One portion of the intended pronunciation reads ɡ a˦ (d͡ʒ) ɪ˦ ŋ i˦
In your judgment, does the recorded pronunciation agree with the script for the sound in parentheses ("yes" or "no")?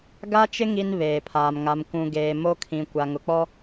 no